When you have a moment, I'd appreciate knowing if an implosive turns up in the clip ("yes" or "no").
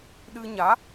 yes